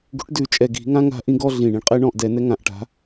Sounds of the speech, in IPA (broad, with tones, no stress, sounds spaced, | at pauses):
ɡ ṳ˨˥ ʈ d ʉ˧˩˧ t͡ʃʼ ɛ˨˩ ɡ i̤˧˩˧ ŋ ã˦ ŋ a̤˦ ʔ ĩ˦ ɡ ɔ˦ ɮ ĩ˨˩ ɳ ĩ˩˧ ɳ qʼ ɛ˦ ɳ ɔ̃˦˨ ʔ d ɛ˧˩˧ n ɛ˦ ŋ ã˨˩ ʔ ʈ a̤˩˧